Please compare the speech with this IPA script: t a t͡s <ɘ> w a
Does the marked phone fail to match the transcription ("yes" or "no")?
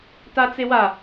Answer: yes